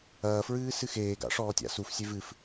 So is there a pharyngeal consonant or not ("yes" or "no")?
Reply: no